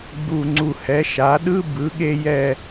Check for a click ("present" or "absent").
present